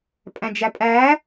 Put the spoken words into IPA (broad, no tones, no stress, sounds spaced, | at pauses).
pʼ æ̃ d͡ʒ æ pʼ æ